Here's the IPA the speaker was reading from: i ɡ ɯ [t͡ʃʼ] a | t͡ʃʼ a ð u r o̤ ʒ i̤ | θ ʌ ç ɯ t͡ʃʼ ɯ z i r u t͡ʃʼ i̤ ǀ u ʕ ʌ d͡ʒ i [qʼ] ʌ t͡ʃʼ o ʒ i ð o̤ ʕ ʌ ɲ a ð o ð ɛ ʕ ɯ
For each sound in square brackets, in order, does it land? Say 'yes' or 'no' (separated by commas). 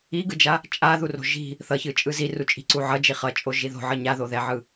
no, no